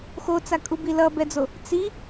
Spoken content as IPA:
x o t͡s a kʼ u b i l ʌ b ɛ d͡z o | t͡s i

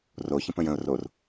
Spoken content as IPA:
r o ç ə̃ p ə̃ j ə̃ ʊ̯ r o r

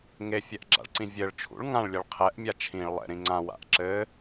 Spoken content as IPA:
ŋ e fʲ ɛ ʔ ɡ͡ǁ a̰ ɭ ǀ ĩ vʲ ɘ ɭ t͡ʃʰ ṵ ɭ ŋ ã ɭ lʲ ɘ ɭ qʰ ɛ ʔ mʲ a t͡ʃʰ ĩ ɭ lˠ ɛ̰ ɾ ĩ ŋ͡ǀ ã w a̰ ʔ ǁ ɘ

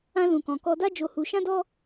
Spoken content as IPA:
ã˧ l ũ˨ k ɔ̃˨ k ɔ˧ d a˦ d͡ʒ o˧ h u˧ ʃ ã˦ d ɔ˦

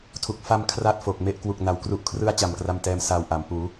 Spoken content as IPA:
tʰ u˨˩ k̚ f a˧ m kʰ r a˥˩ t̚ f o˨˩ k̚ m e˥˩ ʔ k w u˨˩ k̚ n a˩˦ w k r u˦˥ ʔ kʰ r ɯ˥˩ a̯ t͡ɕ a˨˩ m k r a˧ m t ɛː˧ m s aː˧ w ʔ a˩˦ m p uː˩˦

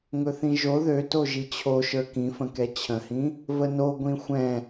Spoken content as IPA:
ŋ ɵ θ ĩ ʒ o ð ø t o ʒ i t͡ɕʰ o ʃ ə˞ k ĩ f ə̃ k ɛ t͡ɕʰ ə̃ h ĩ | v ə n o ɡʷ ĩ xʷ ɛ̃

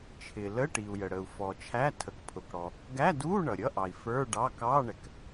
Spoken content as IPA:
t͡ʃʰ ɪ˩ l ə˧˥˧ ʈ i˩ u̯ j ə˩ ɽ ə˩ u̯ f ɔ˩ t͡ʃʰ æ˧˥˧ tʰ ə˩ k pʰ ʊ˩ k ɽ ɔ˩ | ɡ æ˧˥˧ d u˧˥˧ ɳ ʌ˩ ɾʲ ʌ˧˥˧ ʔ ɑ˩ i̯ f ə˞˧˥˧ ɖ ɑ˧˥˧ k ɑ˧˥˧ ɳ ɛ˩ k

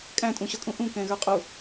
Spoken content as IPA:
kʼ æ̃ tʼ ũ ɕ ʌ kʼ ũ ʔ ũ k ɛ̃ ɣ ə˞ qʼ u

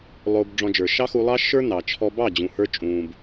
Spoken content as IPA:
lˠ ʊː˧ b ɖ͡ʐ ɔ̃˧ d͡ʒ ə˞˨ ʃ ɑ˦ x u˧ lˠ ɑ˦ ʃ ə˞˦ n ɑ˨ t͡ʃʰ ɔ˦ b ɑ˦˨ d͡ʑ ũ˨ h ə˞˧ t͡ʃʼ ũː˨ b

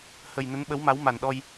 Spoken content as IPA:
h ə˨˩ j n ə˨˦ n ɓ ə˨˦ w m a˨˦ w m a˨˩ n ɗ ɔ˧ j

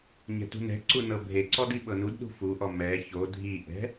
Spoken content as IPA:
ɲ ɛ̤ t ṳ n ɛ̤ ǀ u n ɤ bʱ e ǀ ɔ d i ɓ ɤ n u d ɗ ṳ f u ʔ ɔ m ɛ ç o dʱ i ʔ ɛ̤

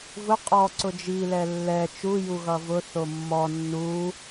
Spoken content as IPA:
v ʊ qʼ ɔ ǀ ʊ d͡ʒ i l ɛ lː ɛ t͡ʃ u j u ɣ ʌ v ʊ θ o mː ɔ nː u

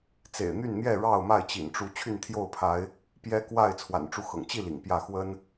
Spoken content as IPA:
t͡s ḛ˨˩ ɪ̯ n̪ y˥˨ n n̪ j ɛ˥˨ ɻ ɑ˥˨ ʊ̯ m a˥˨ ɪ̯ t͡ɕ ḭ˨˩ n ʈ͡ʂ u˨˦ t͡ɕʰ y˥˨ n t̪ʰ j o˥˨ ʊ̯ pʰ a˨˦ ɪ̯ | p j ɛ˦ k w a˥˨ ɪ̯ t͡sʰ w a̰˨˩ n ʈ͡ʂ u˦ x ɤ̰˨˩ ŋ t͡ɕ i˥˨ l ḭ˨˩ ŋ p j ä˥˨ x w ə˦ n

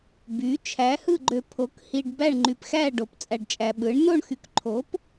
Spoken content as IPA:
b y˨˥ t͡ʃʰ æ˨˥ h ɯ˥˧ ɡ͡ǃ ø˧ pʰ o˨˥ k h i˧ ɖ b æ˥˧ ɳ ŋ͡ǃ y˧ p x æ˥˧ ɖ o˨˥ p t͡sʼ æ˧ ɖ t͡ʃʼ æ˧ ɓ ɯ˨˥ ɳ n o˥˧ ɳ x y˧ k ǃʰ o˨˥ p

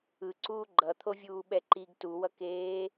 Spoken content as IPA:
ɯ ǀ uː ɡ͡ǃ ʌ t̪ʰ o vʲ uː ɓ ɛ ǃ i ɡ t u w ʌ k eː

